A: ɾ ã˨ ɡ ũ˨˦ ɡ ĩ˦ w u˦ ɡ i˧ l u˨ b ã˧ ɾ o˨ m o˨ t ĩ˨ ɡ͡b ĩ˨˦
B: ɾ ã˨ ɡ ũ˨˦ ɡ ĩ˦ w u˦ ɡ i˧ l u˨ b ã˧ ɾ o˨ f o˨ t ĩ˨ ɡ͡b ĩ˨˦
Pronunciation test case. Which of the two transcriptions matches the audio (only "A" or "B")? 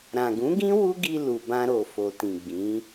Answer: B